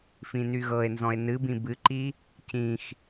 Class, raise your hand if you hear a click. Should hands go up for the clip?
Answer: yes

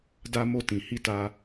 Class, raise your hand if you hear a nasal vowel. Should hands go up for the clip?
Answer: yes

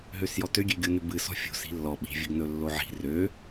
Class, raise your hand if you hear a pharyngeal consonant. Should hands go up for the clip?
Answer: yes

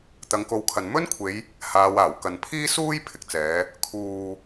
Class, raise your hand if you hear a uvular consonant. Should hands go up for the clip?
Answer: no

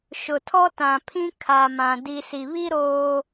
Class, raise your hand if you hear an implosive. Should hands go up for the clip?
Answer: no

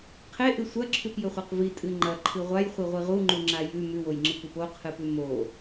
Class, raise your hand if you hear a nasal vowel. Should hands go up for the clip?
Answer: no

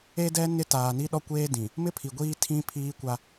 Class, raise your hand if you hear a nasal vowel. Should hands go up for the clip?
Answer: yes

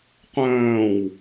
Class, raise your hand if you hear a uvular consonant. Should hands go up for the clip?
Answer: yes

